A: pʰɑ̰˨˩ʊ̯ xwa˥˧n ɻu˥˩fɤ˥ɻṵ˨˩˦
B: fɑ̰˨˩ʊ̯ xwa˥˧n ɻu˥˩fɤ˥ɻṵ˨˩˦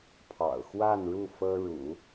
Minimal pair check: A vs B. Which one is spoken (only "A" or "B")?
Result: A